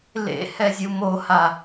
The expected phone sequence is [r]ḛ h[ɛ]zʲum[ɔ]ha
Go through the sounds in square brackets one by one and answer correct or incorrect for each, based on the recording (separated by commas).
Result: incorrect, correct, incorrect